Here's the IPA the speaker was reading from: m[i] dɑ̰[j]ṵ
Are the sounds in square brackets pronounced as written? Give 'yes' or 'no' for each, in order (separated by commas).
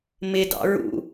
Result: no, no